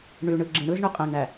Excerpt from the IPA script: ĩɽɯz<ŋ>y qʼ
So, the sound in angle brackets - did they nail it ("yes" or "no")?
no